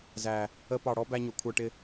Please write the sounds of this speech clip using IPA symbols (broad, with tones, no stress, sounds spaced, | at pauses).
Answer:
z æ˨ | ə˧ p ɑ˨ ɽ ɔ˦ b æ˧ ɲ ʊ˨ kʷʰ ə˞˧ ʈ ɪ˧